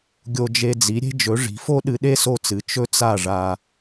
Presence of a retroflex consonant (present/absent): present